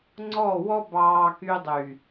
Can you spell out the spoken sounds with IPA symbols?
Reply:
ŋ͡ǀ ɔ˦˨ w ɔ˦ b ɑː˦ k y˦ dˤ y˨

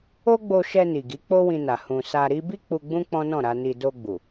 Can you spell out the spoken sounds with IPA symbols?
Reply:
o˦ ɡ͡b o˧ ʃ ɛ˧ n i˨ ɡ i˨˦ k͡p o˦ w ĩ˧ n a˨ h ũ˨ s a˧ ɾ i˦ b i˦ k͡p u˧ ɡ͡b ũ˦ k͡p ɔ̃˦ n ɔ̃˦˨ ɾ a˧ n i˧ d o˧ ɡ͡b u˨

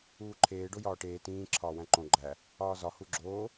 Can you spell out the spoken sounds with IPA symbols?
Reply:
uː ǃʰ eː ɖ o j ɒː ʈ eː t ĩː ǁʰ ɒː w æ̃ ǃ õ ɡ͡ǃ æ | ɒː z ɒ h u ɡ͡ǁ oː

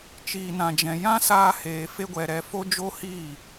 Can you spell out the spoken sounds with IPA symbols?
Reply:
t͡ʃ iː˨ n ã˨ d͡ʒ ɛ̃˨ j ã˦ s aː˧ h eː˨ f e˦ ɡʷ ɛ˧ ɾ ɛ˧ f o˦ d͡ʒ o˦ h iː˦˨

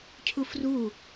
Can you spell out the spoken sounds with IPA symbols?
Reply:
cʰ u f r u

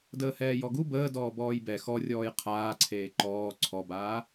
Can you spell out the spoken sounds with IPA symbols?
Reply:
d əː h ɛː j ɔ ɡ u b əː d ɔː b ɔː j b ɛ x ɔ rʲ ɔː j qʰ aː ǀʰ eː ǃ ɔː ǀʰ ɔ b aː

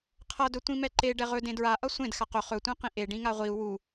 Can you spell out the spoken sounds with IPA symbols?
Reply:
qʰ ʌ d ɵ tʷ ĩ m ɛ ǃ e ɖ ɛ ʁ ɵ d ẽ d ɹ a ʔ ʌ sʷ ẽ d x a q ɵ χ ɵ tʷ ẽ q ĩ ʔ e ɖ ĩ ŋ a ʁʷ i u̯ w u

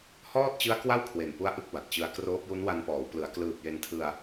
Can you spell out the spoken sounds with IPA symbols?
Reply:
h ɔː˥˩ t̚ t͡ɕ ɯ˦˥ a̯ k w a˥˩ w kʰ w e˨˩ n p u˦˥ a̯ ʔ ɯ˦˥ k̚ b a˨˩ t̚ t͡ɕ ɯ˧ a̯ k r oː˦˥ p̚ j u˦˥ n w a˧ n p ɔː˩˦ w p l ɯ˩˦ a̯ k l ɯː˨˩ p̚ j e˧ n tʰ ɯ˧ a̯

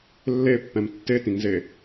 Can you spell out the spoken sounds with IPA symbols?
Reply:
lː e pː ɛ̃ m tː e t ĩ ŋ z e

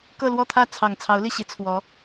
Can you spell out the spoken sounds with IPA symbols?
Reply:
k ɤ˥˧ l w ɔ˥˧ t̪ʰ ä˥˩ t͡sʰ ɑ˨˩ ŋ t͡sʰ ɑ˧˥ ʊ̯ l i˥˩ ɕ i˧˥ t͡sʰ w ɔ˧˥

